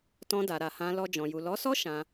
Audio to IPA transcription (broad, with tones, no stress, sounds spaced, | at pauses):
t ɔ̃˧ d a˨ ɾ a˨ h ã˧ l ɔ˧ d͡ʒ ɔ̃˨ j u˨ l ɔ˨˦ s ɔ˦ ʃ ã˧